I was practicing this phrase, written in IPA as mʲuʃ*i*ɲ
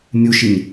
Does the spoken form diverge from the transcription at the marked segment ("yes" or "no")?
no